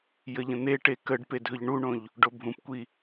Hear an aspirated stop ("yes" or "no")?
no